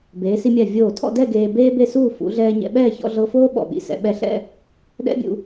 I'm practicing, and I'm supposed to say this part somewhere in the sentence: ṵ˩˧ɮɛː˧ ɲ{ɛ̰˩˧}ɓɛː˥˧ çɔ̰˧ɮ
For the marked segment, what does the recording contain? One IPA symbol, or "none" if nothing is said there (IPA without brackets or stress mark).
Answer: ɛ̰˧